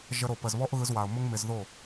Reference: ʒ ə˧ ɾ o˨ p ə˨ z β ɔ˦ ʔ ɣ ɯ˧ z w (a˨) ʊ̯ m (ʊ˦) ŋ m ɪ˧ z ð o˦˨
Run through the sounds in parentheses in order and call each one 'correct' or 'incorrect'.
correct, correct

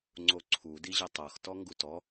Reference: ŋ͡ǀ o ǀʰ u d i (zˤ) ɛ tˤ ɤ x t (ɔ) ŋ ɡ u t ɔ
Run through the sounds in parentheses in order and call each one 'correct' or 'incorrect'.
incorrect: ʑ, correct

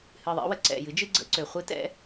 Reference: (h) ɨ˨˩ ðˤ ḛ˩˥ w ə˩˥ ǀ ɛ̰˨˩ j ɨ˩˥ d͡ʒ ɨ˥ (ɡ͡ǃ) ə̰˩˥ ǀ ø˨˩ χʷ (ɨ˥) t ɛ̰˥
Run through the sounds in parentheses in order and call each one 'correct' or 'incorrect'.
correct, incorrect: ɡ͡ǀ, correct

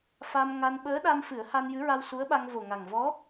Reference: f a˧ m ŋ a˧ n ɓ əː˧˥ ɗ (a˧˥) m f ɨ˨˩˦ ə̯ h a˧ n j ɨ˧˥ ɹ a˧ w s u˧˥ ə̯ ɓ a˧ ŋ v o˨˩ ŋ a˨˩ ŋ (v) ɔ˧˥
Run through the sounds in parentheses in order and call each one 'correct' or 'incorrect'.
incorrect: a˧, correct

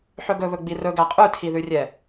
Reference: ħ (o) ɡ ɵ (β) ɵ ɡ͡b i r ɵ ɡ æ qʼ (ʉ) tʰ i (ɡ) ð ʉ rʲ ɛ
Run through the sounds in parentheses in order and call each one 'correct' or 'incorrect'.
incorrect: ɵ, correct, correct, incorrect: none

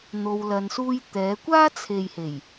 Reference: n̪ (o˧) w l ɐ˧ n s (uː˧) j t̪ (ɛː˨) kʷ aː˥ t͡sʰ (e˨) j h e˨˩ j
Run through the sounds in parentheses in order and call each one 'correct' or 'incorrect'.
correct, incorrect: uː˥, incorrect: ɛː˨˧, correct

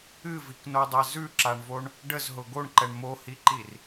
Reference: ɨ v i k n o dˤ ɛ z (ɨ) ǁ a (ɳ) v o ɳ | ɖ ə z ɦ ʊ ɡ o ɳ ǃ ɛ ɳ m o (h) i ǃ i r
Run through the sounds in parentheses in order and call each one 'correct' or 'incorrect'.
incorrect: ʉ, correct, correct

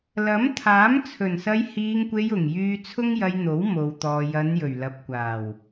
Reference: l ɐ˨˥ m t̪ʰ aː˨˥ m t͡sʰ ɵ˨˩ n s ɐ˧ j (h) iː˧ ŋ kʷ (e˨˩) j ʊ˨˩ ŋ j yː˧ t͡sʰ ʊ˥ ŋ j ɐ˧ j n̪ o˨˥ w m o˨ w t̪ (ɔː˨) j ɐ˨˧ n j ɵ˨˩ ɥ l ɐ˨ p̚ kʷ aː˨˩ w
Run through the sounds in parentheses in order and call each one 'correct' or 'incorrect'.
correct, incorrect: e˧, correct

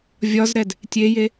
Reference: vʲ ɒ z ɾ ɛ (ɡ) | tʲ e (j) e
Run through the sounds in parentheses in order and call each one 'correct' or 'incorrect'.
incorrect: d, correct

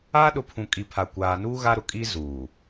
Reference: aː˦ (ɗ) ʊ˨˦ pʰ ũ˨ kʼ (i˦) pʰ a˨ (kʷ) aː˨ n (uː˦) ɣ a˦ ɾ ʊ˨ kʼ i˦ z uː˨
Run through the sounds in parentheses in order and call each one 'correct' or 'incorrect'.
correct, incorrect: i˨, correct, correct

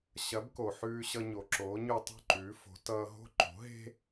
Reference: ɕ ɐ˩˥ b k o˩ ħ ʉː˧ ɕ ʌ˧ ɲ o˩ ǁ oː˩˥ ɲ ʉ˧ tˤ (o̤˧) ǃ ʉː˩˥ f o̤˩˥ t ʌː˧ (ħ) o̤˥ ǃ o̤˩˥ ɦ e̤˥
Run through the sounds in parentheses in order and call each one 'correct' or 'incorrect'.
incorrect: o̤˥˩, incorrect: ɦ

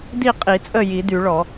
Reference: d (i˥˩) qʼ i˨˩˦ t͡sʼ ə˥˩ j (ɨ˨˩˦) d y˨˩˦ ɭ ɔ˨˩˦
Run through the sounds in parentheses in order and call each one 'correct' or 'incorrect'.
correct, incorrect: i˨˩˦

